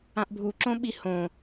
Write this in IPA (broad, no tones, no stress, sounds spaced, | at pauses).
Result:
ã ʔ bʱ u ǁ õ ɓ i h õ